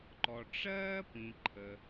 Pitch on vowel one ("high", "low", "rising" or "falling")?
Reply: low